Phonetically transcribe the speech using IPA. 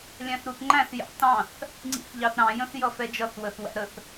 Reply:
lʲ æ̃ θ ɾ u θ ŋ͡ǃ æ̃ θ j ɑ̰ t ɑ̃ θ | ŋ͡ǀ ḭ θ ʎ ɑ θ ɾ ɑ̃ j ə̃ θ j ʌ f ɛ d͡ʒ ʌ θ w ə θ w æ̰ ɾ ə θ

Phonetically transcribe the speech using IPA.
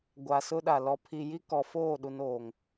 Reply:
ɡʷ a˨ s ʊ˦ ɗ a˨ l ɔ˨ pʰ i˨ j i˦ k ɔ˨ f oː˦˨ ɗ u˨ n oː˨ ŋ

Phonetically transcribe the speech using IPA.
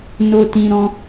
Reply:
n o˧ t ĩ˧ ɾ ɔ̃˦

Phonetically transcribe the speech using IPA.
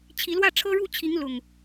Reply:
t͡ɕʰ i˨˦ l w ä˥˨ ʈ͡ʂʰ ɤ˦ ɻ u˥˨ t͡ɕʰ i˨˦ ŋ l ʊ˨˩ ŋ

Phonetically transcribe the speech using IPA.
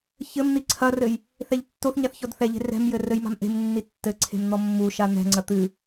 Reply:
ç ɘ m n̪ i ǀʰ ɐ r ɘ j | θ ɛ ʎ tː o θ ɲ a θ ç ɔ d θ ɛ ʎ e̤ r ɛ̤ m j ɘ r ɘ j m a̤ m ʔ e̤ m nː i tː ɘ ǀʰ e̤ m n̪ ɔ mː u ʃ a n̪ ɛ̤ ŋ͡ǀ ɐ t̪ ɨ

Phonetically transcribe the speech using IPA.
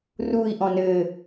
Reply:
r u i̯ ʔ ɔ̃ n ɘ

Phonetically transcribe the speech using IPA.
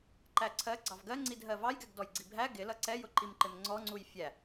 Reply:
ǃ æ ǀʰ ɜ ɡ͡ǀ ɑ v ɡ ɜ ŋ͡ǀ i d ɦ ɜ v ɑ j ɡ ɛ ɡ d ɔ j ɡ͡ǀ i bʱ æ ɡ ɪ l ʌ ǀ ɛ j ʊ ǃ i m ǃ ɪ m ŋ͡ǀ ɔ ŋ͡ǀ u j fʲ æ

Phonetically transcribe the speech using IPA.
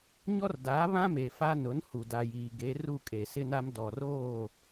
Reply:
ɲ ɔ˦ r d a˨˦ β ã˦ m e˨ f a˦ n ʊ˨˦ n h u˨ d a˨ j iː˨ ɡ e˨˦ r u˦˨ kʼ e˨ s ɪ˦ n a˦ m d ɔ˨ r oː˦˨

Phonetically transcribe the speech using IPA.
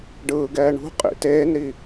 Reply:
ɖ ɯː ɡ ɛː ɳ ṳ qʼ ḭ t eː n ɾ i

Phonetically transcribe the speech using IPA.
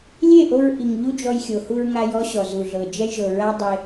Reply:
lʲ e˦˨ ʔ o˧ ɹ ʔ i˨ ŋ ʎ u˦ d͡ʒ ɔ˧ j xʲ o˨ h u˧ ɹ ŋ a˧ j ɔ˦ ɕ ɔ˨ z u˨ ɮ ɤ˨ d͡ʒ ɛ˧ j ʒ ɤ˨ ɹ a˦ dˤ e˧

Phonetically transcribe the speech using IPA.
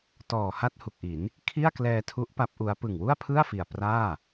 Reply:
t ɔː˨˩ h a˥˩ t̚ h u˨˩ k̚ ʔ i˩˦ n | kʰ i˥˩ a̯ k l ɛː˧ tʰ u˦˥ ʔ p a˦˥ p̚ ʔ u˦˥ a̯ p ɯ˨˩ ŋ w u˥˩ a̯ pʰ ɯ˥˩ a̯ f i˨˩ a̯ p r aː˥˩

